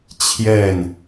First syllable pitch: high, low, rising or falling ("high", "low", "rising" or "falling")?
falling